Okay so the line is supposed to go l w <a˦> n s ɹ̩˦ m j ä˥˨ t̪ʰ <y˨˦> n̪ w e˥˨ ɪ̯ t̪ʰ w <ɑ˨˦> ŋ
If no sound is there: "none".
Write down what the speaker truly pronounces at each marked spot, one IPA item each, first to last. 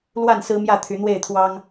a˥˨, y˨˦, ɑ˦

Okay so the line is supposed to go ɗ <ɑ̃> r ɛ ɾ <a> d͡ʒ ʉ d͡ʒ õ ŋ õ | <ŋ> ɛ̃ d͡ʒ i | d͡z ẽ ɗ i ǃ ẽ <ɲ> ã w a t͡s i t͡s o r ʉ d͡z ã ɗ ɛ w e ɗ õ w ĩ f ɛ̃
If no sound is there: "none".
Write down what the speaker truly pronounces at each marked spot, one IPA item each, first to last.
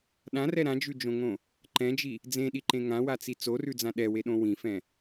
ã, ã, ǃ, ŋ

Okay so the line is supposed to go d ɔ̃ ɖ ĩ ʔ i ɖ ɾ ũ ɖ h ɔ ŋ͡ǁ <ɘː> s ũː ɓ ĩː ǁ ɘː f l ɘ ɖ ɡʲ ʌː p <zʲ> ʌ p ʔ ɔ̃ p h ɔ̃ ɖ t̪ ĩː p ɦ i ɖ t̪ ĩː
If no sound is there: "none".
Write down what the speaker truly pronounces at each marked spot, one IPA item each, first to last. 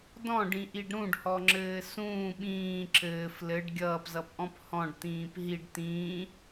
ɘː, z

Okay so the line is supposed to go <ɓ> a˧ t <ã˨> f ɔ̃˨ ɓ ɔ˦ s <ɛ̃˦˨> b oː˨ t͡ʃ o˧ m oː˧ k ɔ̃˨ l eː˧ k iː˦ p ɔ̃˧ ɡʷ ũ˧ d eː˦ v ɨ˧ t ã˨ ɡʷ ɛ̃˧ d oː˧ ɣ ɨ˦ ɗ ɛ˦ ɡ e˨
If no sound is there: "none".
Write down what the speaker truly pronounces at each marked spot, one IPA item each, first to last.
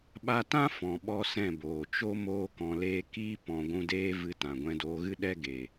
ɓ, ã˦, ɛ̃˦˨

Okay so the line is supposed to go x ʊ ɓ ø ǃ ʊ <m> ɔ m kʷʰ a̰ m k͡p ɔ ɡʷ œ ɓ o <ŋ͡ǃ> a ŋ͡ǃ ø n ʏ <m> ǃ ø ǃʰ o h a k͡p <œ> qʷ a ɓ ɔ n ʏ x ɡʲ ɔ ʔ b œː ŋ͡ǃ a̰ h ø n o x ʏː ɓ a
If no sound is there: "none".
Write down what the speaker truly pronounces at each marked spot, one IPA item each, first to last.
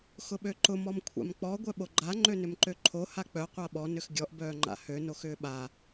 m, ɡ͡ǃ, m, œ

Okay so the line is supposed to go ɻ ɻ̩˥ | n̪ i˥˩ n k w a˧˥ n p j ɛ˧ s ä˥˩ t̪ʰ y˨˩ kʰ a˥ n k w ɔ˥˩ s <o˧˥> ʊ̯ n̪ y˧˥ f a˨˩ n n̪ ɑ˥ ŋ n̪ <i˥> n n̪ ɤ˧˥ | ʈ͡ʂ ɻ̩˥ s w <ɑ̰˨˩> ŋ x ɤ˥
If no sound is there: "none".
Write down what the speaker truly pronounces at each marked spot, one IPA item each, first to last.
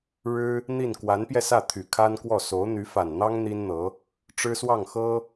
o˧˥, i˥, ɑ˥˩

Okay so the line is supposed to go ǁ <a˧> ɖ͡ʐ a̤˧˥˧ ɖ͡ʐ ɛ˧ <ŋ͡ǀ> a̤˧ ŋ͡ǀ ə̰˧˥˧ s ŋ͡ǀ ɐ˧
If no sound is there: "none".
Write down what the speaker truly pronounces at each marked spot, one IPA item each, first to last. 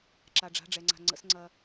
a˧, ŋ͡ǀ

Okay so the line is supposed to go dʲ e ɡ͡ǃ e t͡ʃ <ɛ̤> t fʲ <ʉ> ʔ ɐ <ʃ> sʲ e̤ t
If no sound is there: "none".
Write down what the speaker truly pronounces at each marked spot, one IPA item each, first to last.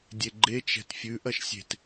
ɛ̤, ʉ, ʃ

